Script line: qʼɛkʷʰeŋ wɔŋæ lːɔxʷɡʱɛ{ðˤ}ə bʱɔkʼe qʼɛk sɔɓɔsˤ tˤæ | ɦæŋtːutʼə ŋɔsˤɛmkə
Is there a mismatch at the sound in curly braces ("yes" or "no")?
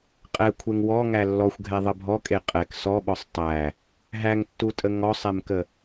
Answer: no